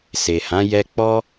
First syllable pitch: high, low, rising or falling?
low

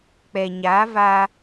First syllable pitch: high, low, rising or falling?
low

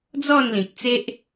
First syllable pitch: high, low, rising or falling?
falling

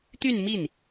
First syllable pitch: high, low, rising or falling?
falling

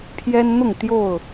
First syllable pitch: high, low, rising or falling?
high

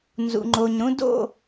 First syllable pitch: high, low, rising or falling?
low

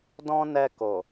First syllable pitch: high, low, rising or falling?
high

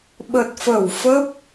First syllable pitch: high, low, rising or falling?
low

